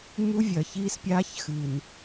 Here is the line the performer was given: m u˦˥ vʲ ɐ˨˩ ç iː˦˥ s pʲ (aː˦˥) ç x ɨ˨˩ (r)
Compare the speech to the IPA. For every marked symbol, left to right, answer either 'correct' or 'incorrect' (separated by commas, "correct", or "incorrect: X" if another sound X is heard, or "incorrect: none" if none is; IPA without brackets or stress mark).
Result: correct, incorrect: n